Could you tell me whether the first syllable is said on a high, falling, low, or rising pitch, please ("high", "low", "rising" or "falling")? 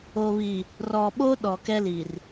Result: low